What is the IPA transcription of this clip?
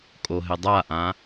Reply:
kʼ o ɦ ɪ dˤ a ʔ ã

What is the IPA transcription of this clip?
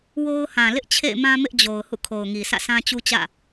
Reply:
w o˦ ʊ̯ h ã˨ l ɪ˦ ʔ t͡ɕʰ ḛ˦˨ ɪ̯ m ã˦ m ɪ˦ ʔ d͡ʑ o˨ ʊ̯ h ṵ˦˨ kʰ o˨ ʊ̯ ŋ i˨ sʰ ä̰˦˨ sʰ ã˦ t͡ɕ u˦ t͡ɕ ä̰˦˨

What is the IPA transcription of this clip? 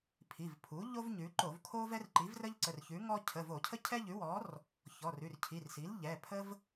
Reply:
pʰ i˩˧˩ v pʰ u˩˥ ʎ o˥ v ɲ ʉ˩˧ ǃ o˧˩˧ v kʰ o˥ v ɛ˥ r ǃ i˩˥ v r ə˥ ʎ ǀ ə˩˧˩ r ç ʉ˩˥ ŋ ɔ˥ cʰ ə˩˧˩ v o˧˩˧ cʰ ə˥ cʰ ɛ˥ ʎ ʉ˩˥ w ɔ˩˥ r | ç ɔ˩˧˩ r ʉ˩˧˩ r cʰ i˩˧˩ r s i˩˥ l ʎ ɛ˩˧˩ pʰ ə˥ v

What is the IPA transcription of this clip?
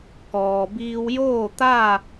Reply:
k ɔː˩ b iː˧ w j oː˥˨ t̪ a˥˨

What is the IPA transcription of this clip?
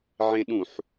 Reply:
ʕ ẽ ɗ ũ ħ

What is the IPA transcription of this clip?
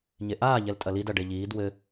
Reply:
ɲ e ʔ aː ʎ ɛ l tʼ ɐ l i d ɐ ɖ e ʎ iː d w ɘ

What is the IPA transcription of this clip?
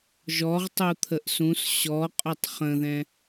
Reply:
ʒ ɔ ʁ tˤ u t̪ʰ ə ʔ s ũ s ɕ ɔ qʼ ɵ tˤ χ ə̃ ð ɛ̃

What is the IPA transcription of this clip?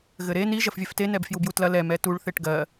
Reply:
ɣ ɘ ɾ e n i ʒ ɐ f vʲ ɛ f t e n ɛ b f j u b j u t l ɐ l ɛ m ɛ t u ɭ θ e ʈ ɡ ɜ

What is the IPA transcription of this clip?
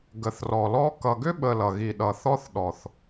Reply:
ɡ ə˨ θ r ɔ˨ l ɔ˦ k ʌ˨ ɡ ʏ˦ ɓ ə˨ l ʌ˨ ɣ i˨ ɗ ʌ˨ θ ɔ˦ θ ɗ ɔ˨ θ

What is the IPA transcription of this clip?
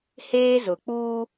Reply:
h eː˦ z ʊ˨ k͡p uː˦

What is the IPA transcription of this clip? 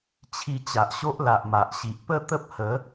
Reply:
t͡ɕʰ i˧ t͡ɕ a˨ ʔ ɕ o˦ ʔ l a˨ ʔ m a˨ ʔ ɕ i˨ ʔ p ə˥˧ t̪ ə˦ p̚ h ə˨˦

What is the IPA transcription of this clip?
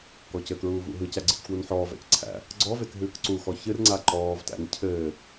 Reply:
k ɔ c ɘ k ɹ uː v ṵ ɦ ɯ c æ ɡ͡ǀ ɯ c k w u n ħ ɔː v æ̰ c ǀʰ æ̰ | ɡ͡ǀ ɔ v e k ɦ ɨː k ǀ u x ɔ ç ɨ r ŋ͡ǀ a ǃ ɔː v t æ̰ n cʰ ɘː

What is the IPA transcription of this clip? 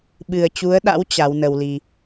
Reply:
ɓ ɨ˨˩ ə̯ t͡ɕ u˨˦ ə̯ ɗ a̰˧˥ w t͡ɕ a˨˦ w n ə˧ w l i˧

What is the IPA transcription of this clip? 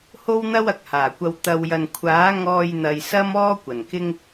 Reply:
h o˥ w n̪ ɐ˥ w ɐ˨ k̚ h aː˨˩ kʷ ɐ˧ w t̪ ɐ˨ w j ɐ˨ n kʷʰ aː˨˥ ŋ ɔː˧ j n̪ ɐ˨ j s ɐ˥ m ɔː˥ kʷ ɐ˨˩ n k ɪ˥ ŋ

